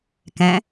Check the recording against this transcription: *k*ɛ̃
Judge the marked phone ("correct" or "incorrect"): correct